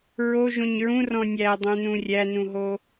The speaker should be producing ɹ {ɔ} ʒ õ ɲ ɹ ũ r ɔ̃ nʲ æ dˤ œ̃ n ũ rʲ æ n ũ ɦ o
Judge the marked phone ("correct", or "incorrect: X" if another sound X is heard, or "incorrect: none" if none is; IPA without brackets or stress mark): incorrect: o